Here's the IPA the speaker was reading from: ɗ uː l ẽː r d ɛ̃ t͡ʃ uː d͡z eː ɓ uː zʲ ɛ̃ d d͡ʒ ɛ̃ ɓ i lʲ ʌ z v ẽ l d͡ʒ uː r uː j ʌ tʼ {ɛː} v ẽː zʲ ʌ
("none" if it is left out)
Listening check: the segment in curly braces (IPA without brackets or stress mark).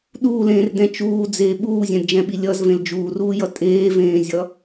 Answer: eː